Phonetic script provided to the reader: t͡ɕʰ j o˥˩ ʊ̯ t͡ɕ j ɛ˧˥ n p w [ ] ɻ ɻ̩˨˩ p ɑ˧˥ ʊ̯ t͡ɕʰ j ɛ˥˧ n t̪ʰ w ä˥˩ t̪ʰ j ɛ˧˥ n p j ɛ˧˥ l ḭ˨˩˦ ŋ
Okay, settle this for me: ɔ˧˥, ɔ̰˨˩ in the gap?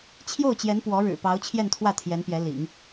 ɔ˧˥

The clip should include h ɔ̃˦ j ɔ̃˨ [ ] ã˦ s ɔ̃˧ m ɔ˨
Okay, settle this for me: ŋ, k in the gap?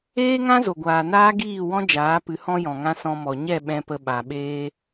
ŋ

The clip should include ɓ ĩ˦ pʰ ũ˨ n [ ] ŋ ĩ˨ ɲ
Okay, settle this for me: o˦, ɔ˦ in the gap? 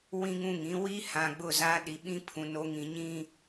o˦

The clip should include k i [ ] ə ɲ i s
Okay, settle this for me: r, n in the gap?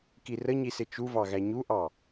r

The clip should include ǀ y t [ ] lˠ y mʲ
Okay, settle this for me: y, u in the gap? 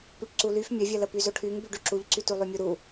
u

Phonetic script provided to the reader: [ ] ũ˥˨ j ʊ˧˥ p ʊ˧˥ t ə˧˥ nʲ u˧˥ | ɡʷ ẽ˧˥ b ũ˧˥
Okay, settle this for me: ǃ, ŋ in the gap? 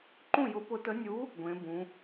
ǃ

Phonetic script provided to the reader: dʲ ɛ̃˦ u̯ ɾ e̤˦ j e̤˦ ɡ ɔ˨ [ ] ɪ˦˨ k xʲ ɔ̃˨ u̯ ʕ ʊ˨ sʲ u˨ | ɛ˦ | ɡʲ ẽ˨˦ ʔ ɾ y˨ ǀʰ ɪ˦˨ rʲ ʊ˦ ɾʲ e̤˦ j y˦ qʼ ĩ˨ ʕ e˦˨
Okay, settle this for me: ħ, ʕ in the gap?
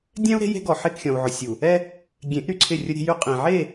ħ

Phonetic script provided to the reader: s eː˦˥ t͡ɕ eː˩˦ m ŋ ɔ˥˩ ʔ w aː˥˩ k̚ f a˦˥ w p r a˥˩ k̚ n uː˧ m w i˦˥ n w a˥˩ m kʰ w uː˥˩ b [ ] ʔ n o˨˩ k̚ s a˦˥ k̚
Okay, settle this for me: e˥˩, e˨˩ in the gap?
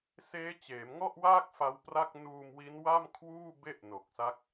e˥˩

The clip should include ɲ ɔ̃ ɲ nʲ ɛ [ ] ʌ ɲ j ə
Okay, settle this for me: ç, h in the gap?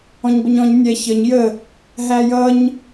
ç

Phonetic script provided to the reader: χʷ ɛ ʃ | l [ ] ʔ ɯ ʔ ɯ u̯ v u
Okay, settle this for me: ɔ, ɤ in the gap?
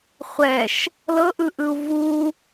ɤ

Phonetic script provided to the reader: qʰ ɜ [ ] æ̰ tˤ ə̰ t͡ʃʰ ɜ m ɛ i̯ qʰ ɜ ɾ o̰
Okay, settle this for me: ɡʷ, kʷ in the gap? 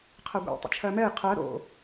ɡʷ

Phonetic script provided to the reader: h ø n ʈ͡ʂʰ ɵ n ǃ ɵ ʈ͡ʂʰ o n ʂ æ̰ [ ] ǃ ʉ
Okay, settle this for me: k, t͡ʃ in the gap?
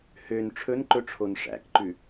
k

